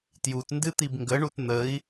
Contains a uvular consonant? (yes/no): no